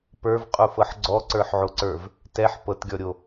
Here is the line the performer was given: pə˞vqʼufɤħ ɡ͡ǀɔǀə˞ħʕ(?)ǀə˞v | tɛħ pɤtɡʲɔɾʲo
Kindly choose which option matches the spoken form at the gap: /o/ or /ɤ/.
o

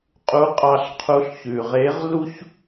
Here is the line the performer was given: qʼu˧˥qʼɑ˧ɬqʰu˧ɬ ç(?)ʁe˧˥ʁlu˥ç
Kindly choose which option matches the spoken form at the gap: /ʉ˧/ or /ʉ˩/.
ʉ˩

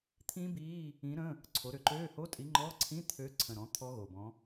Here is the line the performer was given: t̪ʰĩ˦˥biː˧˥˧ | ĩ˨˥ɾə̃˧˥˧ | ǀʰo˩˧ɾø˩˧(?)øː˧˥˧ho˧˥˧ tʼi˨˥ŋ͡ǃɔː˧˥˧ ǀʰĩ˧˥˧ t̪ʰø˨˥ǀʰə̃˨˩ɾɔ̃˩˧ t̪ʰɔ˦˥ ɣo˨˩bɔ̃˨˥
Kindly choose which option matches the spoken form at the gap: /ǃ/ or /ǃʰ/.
ǃ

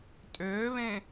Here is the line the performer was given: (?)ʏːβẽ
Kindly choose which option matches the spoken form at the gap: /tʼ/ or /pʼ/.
tʼ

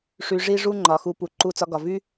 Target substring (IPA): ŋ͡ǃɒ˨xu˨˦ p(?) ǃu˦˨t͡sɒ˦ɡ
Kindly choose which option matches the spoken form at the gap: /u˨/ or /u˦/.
u˨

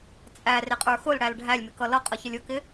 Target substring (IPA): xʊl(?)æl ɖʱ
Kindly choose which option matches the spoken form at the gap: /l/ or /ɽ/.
ɽ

